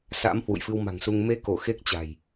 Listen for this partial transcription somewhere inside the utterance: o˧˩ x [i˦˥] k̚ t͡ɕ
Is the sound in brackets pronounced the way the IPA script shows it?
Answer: no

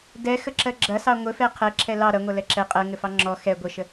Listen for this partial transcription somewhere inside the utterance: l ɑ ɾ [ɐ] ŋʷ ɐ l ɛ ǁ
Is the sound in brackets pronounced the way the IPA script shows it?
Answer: yes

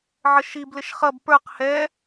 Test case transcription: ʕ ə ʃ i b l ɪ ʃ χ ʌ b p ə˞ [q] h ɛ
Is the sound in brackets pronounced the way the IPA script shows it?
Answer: yes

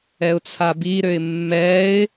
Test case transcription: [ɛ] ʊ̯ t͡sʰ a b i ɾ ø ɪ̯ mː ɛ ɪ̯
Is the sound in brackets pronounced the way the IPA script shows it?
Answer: yes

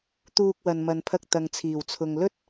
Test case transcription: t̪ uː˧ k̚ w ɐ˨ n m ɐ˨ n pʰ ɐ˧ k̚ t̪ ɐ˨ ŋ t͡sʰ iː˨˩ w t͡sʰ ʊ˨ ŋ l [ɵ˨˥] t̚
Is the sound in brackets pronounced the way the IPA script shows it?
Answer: no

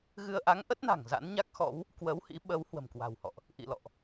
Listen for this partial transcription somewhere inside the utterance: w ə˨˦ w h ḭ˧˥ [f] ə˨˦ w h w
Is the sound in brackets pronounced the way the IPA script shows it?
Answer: no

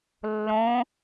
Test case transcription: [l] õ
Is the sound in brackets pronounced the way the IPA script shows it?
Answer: no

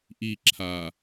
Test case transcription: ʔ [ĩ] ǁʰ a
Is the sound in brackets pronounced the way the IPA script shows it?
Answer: no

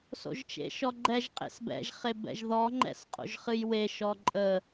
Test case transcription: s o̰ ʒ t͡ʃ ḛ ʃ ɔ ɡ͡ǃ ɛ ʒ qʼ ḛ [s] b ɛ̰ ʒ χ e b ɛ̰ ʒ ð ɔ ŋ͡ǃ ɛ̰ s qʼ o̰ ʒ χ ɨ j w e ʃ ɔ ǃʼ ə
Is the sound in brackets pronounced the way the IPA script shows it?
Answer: yes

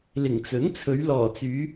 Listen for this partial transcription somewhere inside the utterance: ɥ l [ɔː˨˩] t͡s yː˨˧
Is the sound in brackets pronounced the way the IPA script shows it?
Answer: yes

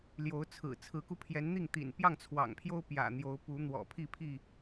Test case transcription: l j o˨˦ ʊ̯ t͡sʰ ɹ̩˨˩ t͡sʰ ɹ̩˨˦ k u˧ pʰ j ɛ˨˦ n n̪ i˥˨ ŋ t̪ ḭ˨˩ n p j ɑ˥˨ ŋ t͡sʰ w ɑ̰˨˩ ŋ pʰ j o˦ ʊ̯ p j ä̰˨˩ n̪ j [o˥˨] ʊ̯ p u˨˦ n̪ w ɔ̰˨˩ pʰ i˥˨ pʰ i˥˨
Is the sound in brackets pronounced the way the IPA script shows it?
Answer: no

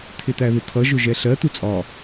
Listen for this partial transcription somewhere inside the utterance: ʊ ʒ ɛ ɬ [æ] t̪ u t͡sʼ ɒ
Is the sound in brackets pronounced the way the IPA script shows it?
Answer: no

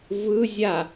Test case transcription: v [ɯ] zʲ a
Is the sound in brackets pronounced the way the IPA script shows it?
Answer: yes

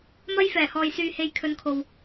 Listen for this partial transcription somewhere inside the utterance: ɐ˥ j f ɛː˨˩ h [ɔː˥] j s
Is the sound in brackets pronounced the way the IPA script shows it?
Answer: no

